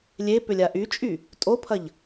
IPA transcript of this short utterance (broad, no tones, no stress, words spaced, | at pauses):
lʲe pʏlʲaʔyt͡ʃʼy | tʼopʰɐʎ